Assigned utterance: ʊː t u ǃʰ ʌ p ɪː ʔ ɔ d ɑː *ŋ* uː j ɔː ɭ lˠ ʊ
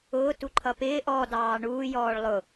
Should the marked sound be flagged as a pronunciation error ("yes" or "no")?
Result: yes